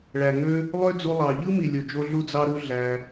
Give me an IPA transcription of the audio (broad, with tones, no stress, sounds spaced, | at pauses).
ɭ æ˨ ŋ ø˦ | lˠ ø˦ d͡z u˧ lˠ ɑ˨ ʎ ɯ˦ m i˨ lʲ o˨ d͡ʒ o˧ ɮ u˦ d͡z ɑ˦ ɾ u˦ ɮ æ˧